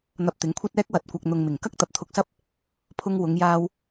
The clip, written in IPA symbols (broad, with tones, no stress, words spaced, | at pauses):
n̪ɐ˧p̚t̪ɪ˨˥ŋkʷʰɐ˥t̚ɛː˥k̚ wɐ˨t̚kʷɐ˨k̚n̪ʊ˨ŋ mɪ˨˩ŋkɐ˥k̚t̪ɐ˨p̚ t̪ʰʊ˧k̚sɐ˥p̚ | pʰʊ˧ŋ wʊ˨˧ŋjaː˧w